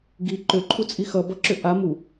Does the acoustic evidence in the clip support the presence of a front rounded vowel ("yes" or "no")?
yes